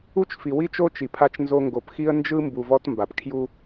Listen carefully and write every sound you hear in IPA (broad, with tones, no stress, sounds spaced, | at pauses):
u˦ t͡ʃ f i˨ w i˦ t͡ʃ o˦ t͡ʃ i˨ pʰ a˦ t͡ʃ n z o˦ ŋ ɡ o˨ p x i˦ ə̯ n d͡ʒ ɯ˦ m b u˨ v ɔ˦ t m b a˨ p kʰ j u˦